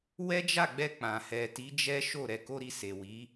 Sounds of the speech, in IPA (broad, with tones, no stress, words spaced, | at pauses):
wɛ˦d͡ʒa˦˨ɡ͡bɛ˧ k͡pã˨hɛ˨ti˨˦ d͡ʒɛ˦ʃo˦˨ ɾɛ˧ko˦ɾi˦˨ se˨wi˨˦